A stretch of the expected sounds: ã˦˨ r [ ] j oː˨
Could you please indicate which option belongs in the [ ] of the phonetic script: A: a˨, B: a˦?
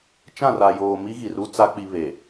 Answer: A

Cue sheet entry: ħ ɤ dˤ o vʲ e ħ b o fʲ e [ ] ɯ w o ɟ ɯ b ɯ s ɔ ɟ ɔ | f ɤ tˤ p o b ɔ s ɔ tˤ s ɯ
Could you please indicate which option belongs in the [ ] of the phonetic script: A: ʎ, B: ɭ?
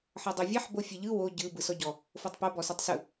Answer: A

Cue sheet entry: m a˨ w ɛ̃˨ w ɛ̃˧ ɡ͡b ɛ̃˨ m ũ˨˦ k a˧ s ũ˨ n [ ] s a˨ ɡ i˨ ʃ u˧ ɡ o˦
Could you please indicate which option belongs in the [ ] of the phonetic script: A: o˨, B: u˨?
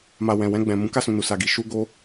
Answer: B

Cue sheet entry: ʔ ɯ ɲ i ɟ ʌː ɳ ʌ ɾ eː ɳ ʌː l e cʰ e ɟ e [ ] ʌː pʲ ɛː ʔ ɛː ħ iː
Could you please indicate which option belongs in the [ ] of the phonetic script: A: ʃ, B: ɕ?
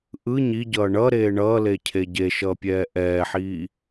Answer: A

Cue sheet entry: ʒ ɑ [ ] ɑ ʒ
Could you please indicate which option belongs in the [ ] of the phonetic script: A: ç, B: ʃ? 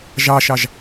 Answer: B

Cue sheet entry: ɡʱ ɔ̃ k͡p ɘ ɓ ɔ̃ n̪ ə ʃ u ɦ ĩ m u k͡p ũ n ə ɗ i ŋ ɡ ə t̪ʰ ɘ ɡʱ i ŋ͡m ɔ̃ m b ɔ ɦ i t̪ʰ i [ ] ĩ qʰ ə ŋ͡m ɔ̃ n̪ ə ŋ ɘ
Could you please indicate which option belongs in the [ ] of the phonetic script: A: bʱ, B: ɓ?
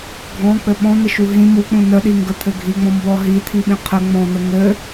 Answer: B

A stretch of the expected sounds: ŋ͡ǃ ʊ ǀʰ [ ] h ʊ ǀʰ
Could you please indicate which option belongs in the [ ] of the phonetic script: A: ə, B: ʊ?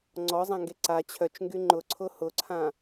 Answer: B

